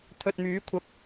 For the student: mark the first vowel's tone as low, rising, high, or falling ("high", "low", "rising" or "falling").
low